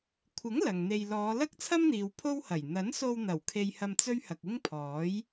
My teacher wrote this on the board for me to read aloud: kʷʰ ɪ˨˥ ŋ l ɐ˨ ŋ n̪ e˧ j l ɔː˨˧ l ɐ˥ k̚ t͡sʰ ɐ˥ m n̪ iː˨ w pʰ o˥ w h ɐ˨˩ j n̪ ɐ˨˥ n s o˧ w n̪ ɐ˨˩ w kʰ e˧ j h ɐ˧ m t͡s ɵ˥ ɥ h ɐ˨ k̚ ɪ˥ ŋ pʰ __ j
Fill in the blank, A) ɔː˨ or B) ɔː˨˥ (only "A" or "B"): B